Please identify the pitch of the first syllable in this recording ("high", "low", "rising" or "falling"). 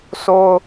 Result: high